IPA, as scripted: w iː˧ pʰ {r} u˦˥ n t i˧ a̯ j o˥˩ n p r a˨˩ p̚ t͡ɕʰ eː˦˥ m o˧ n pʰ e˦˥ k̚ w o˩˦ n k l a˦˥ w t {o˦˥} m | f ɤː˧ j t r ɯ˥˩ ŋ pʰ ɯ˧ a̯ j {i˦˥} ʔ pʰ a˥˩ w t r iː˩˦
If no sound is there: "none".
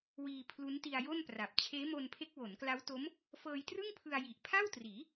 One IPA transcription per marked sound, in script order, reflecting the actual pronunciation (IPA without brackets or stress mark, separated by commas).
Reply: l, o˦˥, i˨˩